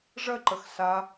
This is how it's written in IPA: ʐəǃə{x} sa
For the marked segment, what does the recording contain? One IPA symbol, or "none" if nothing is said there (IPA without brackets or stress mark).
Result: x